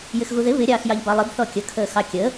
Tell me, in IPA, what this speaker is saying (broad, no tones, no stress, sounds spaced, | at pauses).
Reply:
j ɪ x ɣ u ð ɪ β ɪ ɾʲ ɑː x j ɑ ʎ b ɑ lˠ ɪ b θ ɔ kʲ ə kʰ əː x ɑ kʲ əː